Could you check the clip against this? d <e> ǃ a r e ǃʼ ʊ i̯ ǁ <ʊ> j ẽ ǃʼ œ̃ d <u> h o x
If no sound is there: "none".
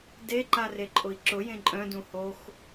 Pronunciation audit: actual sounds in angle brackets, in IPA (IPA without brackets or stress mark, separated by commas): e, ʊ, ũ